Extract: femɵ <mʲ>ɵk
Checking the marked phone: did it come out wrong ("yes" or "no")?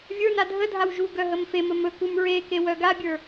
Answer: yes